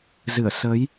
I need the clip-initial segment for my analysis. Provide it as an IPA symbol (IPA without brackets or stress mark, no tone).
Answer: z